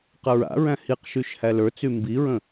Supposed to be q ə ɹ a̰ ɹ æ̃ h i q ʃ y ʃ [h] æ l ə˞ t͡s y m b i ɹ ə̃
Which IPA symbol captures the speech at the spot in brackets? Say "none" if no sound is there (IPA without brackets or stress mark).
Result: h